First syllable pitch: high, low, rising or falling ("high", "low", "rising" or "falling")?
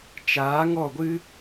rising